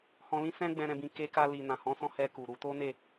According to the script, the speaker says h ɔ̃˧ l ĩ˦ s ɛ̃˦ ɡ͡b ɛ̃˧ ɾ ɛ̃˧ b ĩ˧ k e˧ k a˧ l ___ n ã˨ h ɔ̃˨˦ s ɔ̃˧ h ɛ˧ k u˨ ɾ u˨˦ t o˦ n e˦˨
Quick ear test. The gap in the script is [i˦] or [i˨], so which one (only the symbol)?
i˨